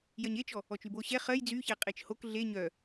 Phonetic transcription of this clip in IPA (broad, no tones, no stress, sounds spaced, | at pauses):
j ɜ ɲ e t͡ʃ ɔ | ɔ t͡ʃ y b o ɕ ɛ χ ɜ j d͡z y ç æ qʼ e t͡ʃ h o k ɮ e ɲ œ